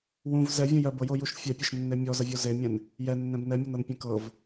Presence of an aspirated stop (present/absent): absent